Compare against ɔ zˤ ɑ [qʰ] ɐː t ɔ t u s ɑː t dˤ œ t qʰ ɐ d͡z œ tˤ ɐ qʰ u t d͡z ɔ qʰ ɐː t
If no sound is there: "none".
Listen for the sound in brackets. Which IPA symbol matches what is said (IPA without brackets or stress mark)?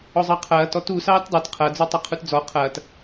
qʰ